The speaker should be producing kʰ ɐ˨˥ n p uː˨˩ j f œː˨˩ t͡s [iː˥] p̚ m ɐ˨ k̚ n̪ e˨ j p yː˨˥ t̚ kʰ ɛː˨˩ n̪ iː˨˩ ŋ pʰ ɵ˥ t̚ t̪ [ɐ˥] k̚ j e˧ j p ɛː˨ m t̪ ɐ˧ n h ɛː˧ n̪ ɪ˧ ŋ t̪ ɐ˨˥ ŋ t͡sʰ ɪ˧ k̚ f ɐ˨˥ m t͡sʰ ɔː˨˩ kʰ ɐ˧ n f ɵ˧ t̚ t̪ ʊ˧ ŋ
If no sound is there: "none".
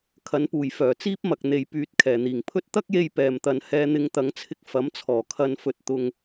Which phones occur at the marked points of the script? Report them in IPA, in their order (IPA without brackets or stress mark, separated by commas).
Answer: iː˥, ɐ˥